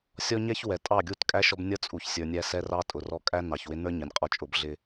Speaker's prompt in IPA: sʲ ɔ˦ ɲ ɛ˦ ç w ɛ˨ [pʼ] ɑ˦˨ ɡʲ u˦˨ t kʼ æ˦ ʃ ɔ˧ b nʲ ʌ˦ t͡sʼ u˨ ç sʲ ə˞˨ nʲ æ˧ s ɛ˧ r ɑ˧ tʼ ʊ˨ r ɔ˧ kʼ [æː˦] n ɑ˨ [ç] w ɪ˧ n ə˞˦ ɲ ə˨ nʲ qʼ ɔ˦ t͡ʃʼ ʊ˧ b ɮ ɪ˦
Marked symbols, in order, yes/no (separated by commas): no, no, yes